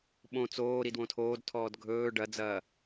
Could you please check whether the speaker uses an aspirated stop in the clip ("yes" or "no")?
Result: yes